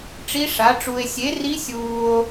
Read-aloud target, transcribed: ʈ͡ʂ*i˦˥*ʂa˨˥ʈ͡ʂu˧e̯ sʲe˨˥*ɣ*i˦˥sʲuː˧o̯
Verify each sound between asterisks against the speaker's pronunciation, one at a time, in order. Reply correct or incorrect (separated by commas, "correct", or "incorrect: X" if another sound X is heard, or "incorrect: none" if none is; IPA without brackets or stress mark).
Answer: correct, incorrect: r